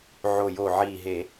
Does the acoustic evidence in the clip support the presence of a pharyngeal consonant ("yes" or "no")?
yes